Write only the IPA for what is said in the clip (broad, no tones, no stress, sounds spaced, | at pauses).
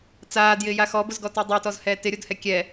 t͡s aː d j ɪː j a x ɔ b ʊ z ɡ ɔ t e dˤ ʊː t ɔ z h ɛː t ɪ ɾʲ o d h ɛ kʲ ɛ